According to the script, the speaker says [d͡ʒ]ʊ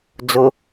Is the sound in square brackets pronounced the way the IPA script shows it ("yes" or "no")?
no